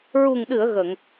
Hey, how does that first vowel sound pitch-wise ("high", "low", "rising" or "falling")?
low